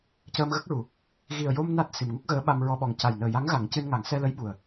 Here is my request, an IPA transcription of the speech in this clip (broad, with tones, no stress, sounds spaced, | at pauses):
c əː˧ m ɣ ə˦˥ k̚ ɹ u˨˩˦ | ɣ i˨˩ ə̯ j o˧ m n a˦˥ t̚ s i˨˩ m ŋ u˦˥ k̚ ɣ əː˧˥ ɓ a˧ m ɹ ɔ˧ ɓ ɔ˨˩ ŋ c a˨˩ j n əː˨˩ j a˧˥ ŋ ɣ a˨˩˦ ŋ c ɨ˧ n ŋ a˨˩˦ ŋ s ɛ˧ l ə˧˥ j ɓ u˨˩ ə̯